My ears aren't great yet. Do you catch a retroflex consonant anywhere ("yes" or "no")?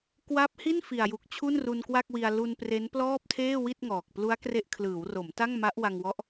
no